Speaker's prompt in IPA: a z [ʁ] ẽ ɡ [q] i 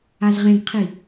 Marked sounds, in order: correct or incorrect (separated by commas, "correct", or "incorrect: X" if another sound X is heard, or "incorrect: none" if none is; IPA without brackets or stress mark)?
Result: correct, incorrect: qʰ